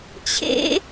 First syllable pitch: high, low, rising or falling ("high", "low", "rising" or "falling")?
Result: high